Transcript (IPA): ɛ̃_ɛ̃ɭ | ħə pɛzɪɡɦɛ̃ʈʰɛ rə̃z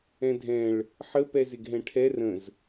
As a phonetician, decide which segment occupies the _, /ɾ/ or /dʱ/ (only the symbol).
dʱ